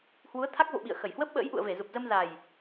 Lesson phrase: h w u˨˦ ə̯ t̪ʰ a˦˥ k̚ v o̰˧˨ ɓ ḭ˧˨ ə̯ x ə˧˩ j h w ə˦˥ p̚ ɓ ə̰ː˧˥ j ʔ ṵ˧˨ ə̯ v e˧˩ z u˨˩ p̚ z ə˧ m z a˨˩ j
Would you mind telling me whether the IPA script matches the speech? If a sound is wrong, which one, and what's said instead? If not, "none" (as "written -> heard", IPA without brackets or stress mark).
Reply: none